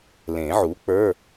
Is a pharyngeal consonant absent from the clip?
no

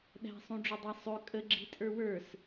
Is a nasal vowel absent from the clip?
no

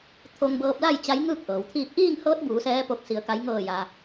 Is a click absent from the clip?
yes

